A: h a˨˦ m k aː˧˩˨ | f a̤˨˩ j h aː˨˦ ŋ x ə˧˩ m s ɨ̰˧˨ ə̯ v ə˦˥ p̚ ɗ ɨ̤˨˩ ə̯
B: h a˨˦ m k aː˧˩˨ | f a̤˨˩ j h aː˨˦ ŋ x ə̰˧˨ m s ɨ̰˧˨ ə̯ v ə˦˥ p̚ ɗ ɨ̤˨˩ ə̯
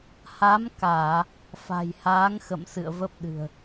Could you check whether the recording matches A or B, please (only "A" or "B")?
B